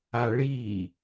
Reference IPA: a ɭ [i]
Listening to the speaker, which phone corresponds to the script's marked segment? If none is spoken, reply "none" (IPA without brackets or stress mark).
i